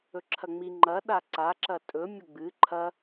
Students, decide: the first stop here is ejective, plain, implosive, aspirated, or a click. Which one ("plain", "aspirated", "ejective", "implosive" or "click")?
click